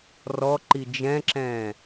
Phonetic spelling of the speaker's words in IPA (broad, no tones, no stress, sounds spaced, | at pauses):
r ɔ ǃ i d͡ʒ ɛ̃ ǁ ɛ̃ː